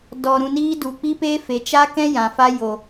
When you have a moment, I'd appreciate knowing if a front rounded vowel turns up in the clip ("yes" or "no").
no